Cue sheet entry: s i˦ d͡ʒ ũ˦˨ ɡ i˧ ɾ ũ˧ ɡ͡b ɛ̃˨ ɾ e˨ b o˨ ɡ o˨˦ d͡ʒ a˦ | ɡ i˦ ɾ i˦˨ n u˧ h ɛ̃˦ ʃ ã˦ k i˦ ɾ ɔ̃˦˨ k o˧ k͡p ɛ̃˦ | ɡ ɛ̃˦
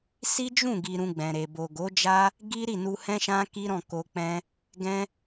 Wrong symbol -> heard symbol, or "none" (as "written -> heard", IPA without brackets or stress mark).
none